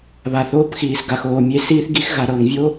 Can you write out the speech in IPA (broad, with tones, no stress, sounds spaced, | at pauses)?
β a˨ θ oː˦ p x iː˨ s ɡ a˨ x oː˨ mʲ e˦ s iː˦ θ ɡ i˦ x ɣ a˨ ɾ ɤː˨ ŋ vʲ o˦